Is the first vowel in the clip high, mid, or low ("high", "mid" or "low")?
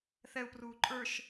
mid